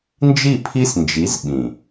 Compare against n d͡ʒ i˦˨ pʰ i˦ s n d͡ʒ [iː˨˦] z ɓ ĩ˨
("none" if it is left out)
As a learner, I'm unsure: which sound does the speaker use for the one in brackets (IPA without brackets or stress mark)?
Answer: i˨˦